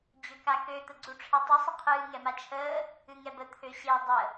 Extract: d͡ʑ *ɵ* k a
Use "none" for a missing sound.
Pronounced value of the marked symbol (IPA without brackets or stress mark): ø